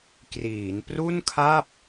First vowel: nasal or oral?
oral